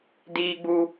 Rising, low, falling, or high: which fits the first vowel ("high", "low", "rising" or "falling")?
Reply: high